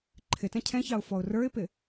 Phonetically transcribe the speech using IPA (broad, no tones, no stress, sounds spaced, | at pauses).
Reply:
ǃʰ ɪ t ɛ̃ cʰ ɛ̃ ç ɑ ʊ̯ f ɔ ʊ̯ r ə˞ ɪ̯ p ɪ